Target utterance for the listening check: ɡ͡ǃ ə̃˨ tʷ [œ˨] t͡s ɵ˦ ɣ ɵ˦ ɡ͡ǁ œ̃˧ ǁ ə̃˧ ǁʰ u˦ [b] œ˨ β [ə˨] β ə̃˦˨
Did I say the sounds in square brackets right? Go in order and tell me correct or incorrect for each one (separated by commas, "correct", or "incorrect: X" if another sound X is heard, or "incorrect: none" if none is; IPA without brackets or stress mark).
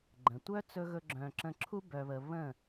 incorrect: œ˦, correct, correct